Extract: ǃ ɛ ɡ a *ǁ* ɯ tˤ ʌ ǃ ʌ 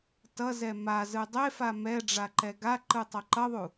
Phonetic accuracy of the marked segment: incorrect: ǃ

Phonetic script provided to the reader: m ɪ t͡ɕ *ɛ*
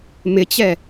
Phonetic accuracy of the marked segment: correct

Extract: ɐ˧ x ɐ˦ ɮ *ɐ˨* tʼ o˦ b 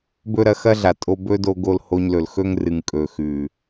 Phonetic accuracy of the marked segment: incorrect: a˨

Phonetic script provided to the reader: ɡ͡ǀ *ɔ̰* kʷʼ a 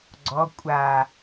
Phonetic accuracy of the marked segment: incorrect: ɔ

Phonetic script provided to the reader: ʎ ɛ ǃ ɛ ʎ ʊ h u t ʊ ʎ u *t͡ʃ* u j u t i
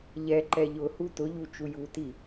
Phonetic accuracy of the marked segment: correct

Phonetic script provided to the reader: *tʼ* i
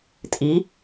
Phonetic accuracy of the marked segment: correct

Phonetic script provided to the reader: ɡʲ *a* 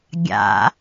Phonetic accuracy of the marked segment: incorrect: a̰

